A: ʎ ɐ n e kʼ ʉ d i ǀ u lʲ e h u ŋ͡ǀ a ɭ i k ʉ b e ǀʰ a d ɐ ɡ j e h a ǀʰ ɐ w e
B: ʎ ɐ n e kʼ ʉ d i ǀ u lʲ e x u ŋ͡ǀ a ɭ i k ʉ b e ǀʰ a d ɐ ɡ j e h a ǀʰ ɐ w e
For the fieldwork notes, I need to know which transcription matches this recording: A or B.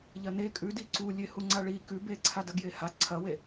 A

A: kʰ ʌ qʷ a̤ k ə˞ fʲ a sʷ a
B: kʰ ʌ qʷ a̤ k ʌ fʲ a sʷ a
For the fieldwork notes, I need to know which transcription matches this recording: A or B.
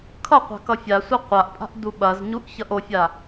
B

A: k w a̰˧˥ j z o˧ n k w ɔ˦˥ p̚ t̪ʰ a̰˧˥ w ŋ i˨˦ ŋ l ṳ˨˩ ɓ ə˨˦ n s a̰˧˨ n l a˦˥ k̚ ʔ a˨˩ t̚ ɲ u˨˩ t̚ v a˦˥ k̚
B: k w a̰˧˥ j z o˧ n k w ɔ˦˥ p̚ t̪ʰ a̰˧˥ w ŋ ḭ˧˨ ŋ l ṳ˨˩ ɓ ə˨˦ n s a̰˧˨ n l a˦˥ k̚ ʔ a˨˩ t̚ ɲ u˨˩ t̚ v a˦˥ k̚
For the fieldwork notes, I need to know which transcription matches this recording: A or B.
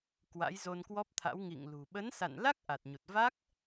B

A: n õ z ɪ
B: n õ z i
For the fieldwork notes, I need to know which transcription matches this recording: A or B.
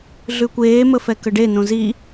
B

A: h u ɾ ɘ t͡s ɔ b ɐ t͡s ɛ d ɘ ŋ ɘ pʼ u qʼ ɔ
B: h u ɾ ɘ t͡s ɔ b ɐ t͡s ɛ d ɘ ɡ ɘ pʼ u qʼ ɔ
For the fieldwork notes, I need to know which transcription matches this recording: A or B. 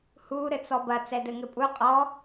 A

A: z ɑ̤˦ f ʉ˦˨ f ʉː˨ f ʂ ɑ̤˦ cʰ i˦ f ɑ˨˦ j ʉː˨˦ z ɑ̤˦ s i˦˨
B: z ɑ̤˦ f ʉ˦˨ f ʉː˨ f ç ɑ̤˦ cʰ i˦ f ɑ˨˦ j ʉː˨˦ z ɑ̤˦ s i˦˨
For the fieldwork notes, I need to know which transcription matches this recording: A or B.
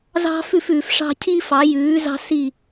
A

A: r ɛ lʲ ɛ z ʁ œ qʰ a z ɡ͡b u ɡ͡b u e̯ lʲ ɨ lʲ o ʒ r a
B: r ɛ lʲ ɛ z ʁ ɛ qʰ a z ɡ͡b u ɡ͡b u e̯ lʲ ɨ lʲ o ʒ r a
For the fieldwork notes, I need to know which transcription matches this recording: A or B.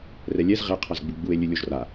B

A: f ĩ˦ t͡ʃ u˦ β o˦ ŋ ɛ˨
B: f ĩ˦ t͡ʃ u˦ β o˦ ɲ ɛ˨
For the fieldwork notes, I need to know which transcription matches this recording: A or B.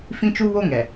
A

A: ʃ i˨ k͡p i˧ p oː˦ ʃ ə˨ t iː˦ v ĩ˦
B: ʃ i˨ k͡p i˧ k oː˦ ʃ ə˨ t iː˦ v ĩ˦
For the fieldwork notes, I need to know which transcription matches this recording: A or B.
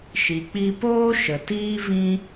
A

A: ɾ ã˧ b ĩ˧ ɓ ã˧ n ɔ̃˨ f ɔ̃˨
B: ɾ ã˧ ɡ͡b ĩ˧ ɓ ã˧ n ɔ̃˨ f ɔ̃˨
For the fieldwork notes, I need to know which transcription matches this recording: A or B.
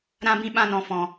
A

